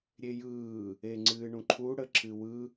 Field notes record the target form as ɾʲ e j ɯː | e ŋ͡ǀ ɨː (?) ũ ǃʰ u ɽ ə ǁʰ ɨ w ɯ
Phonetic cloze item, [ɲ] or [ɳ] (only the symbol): ɳ